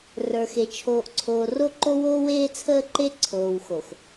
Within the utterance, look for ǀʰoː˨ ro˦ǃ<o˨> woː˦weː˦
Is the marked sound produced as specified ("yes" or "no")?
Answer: no